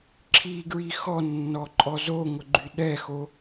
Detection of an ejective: present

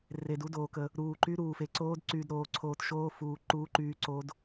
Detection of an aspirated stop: present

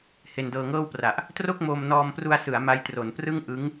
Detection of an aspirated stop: absent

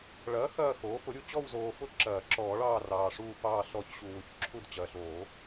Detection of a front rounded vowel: absent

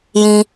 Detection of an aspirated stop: absent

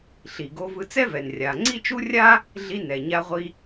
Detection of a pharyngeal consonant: absent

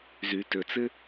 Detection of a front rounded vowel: present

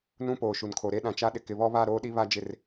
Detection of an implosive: present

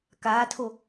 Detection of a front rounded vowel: absent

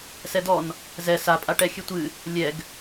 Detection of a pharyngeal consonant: absent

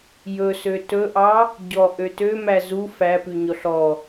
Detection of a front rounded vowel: present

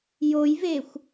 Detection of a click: absent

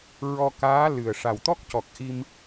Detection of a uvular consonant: absent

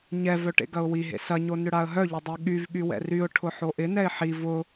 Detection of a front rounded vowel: present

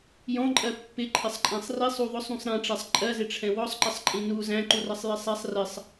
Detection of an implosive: absent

